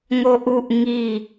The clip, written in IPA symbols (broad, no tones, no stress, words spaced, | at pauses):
ŋoʔuʔ ŋi